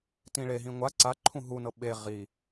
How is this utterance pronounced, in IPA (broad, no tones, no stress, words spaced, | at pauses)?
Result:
tĩɭeɦĩ ŋʷa ǀaǃʰũ ɦunɤ ɓe ʁi